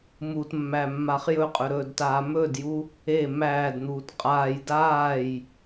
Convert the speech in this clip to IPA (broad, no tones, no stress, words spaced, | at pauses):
mutmːæ mːaχjɵqʼɵ ɾɵːdtaːmɵdju | e mæːdn̪uːt qʼaːj daːj